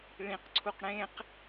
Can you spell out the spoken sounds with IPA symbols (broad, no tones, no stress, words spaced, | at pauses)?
ɭĩqǀʰuq ɽẽq